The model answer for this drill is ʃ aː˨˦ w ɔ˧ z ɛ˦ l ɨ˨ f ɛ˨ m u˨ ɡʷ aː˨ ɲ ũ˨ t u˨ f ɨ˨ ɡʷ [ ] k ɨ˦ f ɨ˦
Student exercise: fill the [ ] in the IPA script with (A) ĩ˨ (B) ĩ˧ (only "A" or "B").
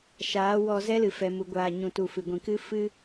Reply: A